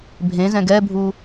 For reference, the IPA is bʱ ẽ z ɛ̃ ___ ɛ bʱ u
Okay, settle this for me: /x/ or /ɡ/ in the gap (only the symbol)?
ɡ